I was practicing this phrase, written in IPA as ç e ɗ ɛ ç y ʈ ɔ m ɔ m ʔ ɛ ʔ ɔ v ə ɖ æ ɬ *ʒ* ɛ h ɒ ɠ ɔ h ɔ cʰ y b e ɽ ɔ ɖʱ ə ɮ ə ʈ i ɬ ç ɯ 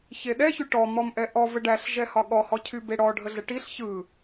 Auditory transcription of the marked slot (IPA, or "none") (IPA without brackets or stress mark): ʒ